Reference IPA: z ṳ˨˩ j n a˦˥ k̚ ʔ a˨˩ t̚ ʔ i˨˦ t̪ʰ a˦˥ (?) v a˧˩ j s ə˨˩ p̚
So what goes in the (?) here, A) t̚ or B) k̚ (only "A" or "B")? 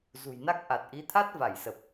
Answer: A